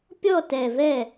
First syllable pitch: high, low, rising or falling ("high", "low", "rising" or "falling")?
falling